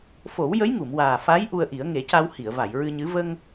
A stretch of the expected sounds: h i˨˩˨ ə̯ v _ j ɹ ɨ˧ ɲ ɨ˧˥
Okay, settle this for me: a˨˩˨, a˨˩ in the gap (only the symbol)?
a˨˩˨